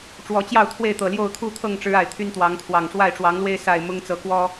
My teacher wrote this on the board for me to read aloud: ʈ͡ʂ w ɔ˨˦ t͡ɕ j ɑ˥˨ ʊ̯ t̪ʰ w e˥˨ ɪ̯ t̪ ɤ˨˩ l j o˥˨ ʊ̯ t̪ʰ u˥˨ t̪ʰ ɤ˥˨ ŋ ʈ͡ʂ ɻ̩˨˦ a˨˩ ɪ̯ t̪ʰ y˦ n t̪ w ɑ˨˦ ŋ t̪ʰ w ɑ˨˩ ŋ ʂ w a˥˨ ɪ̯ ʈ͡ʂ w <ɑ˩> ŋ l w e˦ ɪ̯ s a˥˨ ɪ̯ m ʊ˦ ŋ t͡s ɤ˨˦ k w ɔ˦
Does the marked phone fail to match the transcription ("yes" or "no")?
yes